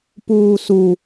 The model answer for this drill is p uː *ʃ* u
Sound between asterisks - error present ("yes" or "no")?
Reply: yes